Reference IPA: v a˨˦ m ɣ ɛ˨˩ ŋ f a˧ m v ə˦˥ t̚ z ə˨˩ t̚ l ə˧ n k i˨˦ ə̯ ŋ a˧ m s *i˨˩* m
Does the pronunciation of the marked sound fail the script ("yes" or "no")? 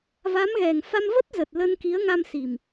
no